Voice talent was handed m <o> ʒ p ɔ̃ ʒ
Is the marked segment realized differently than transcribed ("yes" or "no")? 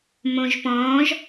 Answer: yes